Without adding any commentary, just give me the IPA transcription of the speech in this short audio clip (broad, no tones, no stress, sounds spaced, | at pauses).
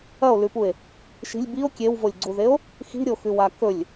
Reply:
ɐ o̯ l ʉ p u e̯ | ʃ i̤ lʲ b i o̯ kʲ e w v o lʲ ɡ͡ǀ u ð e o̯ | x i̤ ɾʲ o x ʉ w a k ɵ lʲ